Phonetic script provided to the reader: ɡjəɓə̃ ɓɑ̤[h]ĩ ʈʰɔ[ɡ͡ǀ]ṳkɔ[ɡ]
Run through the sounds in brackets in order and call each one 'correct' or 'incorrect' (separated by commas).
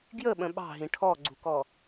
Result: incorrect, correct, incorrect